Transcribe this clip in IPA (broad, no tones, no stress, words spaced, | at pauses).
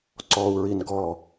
ǀɔu̯ ɹinɡɔ